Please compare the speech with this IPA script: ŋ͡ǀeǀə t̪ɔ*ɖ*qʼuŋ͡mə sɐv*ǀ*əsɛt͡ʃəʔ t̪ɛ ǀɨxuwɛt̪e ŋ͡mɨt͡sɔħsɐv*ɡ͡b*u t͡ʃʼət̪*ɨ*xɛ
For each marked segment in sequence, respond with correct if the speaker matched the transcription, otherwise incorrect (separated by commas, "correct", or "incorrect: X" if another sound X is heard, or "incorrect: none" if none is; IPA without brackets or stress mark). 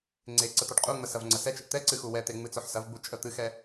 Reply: correct, incorrect: ŋ͡ǀ, correct, correct